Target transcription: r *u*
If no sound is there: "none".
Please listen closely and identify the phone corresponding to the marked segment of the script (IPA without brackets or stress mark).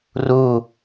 u